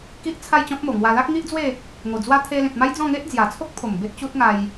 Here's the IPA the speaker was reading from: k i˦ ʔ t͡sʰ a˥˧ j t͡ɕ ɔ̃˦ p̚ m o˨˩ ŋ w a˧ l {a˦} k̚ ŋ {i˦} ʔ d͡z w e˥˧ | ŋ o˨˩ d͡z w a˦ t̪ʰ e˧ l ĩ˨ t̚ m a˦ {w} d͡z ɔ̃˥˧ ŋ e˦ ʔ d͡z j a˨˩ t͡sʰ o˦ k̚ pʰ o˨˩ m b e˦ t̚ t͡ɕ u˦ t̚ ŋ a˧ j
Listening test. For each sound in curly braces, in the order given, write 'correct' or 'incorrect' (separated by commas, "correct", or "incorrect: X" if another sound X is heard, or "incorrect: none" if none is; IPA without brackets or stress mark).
correct, correct, incorrect: j